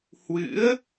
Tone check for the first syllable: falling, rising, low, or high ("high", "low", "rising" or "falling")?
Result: rising